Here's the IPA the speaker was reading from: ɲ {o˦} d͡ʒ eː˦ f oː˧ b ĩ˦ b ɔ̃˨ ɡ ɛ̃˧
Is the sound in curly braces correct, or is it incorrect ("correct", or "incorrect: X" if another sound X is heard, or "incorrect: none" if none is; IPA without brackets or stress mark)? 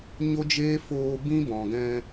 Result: correct